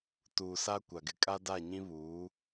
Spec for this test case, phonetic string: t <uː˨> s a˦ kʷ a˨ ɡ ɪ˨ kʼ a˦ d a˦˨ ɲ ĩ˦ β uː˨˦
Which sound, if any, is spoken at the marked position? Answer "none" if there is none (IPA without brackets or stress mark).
uː˨